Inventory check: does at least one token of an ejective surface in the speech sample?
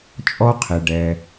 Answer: yes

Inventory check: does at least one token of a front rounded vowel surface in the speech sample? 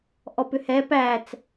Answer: yes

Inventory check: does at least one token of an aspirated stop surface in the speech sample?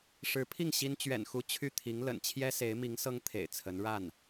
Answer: yes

